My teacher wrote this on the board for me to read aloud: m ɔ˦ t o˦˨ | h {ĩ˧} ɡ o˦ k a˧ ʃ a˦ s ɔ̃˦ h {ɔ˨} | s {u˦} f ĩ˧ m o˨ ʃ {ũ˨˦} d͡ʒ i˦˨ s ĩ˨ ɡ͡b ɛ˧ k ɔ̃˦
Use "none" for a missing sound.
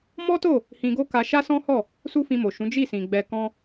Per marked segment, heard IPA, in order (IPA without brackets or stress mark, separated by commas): ĩ˧, ɔ˦˨, u˦, ũ˨˦